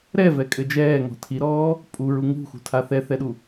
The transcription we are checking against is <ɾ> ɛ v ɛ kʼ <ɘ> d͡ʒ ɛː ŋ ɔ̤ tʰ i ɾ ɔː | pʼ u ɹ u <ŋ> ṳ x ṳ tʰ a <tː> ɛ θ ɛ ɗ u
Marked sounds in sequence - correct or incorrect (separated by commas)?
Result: correct, correct, correct, incorrect